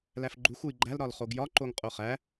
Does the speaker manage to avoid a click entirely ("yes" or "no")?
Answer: no